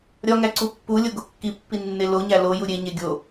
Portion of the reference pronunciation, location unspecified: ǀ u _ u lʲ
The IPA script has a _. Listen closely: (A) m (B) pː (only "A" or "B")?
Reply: B